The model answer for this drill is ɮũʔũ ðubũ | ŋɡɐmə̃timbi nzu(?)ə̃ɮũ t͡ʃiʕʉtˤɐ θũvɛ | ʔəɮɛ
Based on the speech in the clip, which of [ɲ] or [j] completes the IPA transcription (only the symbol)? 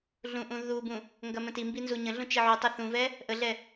ɲ